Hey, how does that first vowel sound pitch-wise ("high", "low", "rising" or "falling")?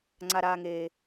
low